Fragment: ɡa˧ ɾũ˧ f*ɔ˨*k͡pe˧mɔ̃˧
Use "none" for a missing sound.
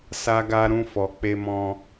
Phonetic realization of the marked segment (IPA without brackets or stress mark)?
ɔ˨